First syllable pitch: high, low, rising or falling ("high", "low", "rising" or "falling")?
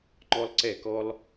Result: high